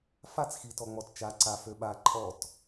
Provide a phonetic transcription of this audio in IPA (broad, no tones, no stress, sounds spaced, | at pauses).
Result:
f a t͡s x i t ɔ ŋ͡m ɔ t t͡ʃ a ǀ a f ø ɓ a ǃʼ ɔ t